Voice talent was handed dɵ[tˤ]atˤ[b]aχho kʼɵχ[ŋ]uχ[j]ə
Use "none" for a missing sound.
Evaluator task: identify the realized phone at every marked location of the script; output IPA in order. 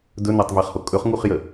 n, v, ŋ, j

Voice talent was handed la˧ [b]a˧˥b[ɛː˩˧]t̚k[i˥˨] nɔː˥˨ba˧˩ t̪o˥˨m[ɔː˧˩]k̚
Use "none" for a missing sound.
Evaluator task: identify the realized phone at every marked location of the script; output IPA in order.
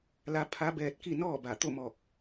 pʰ, ɛː˧, i˥˨, ɔː˧˩

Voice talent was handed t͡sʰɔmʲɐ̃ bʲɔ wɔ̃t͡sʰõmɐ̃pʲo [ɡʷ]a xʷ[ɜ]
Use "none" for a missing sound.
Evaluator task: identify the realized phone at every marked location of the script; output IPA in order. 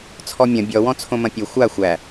xʷ, æ

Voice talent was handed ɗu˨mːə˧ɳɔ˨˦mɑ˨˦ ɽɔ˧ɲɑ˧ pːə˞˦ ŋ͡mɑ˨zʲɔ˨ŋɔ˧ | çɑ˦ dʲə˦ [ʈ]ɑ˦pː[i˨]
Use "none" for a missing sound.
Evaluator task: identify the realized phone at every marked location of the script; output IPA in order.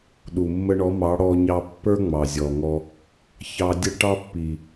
ʈ, i˨

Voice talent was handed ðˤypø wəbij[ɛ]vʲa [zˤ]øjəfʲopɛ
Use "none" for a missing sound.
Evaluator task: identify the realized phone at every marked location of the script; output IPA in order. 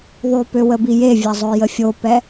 e, zˤ

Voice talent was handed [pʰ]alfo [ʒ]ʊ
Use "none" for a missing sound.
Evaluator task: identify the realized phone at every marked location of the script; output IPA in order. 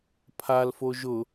pʰ, ʒ

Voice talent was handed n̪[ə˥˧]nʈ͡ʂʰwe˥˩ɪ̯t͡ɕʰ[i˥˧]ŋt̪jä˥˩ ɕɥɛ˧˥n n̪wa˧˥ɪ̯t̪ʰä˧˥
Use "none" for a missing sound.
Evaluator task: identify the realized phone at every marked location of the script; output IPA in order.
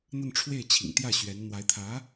ə˥˧, ḭ˨˩

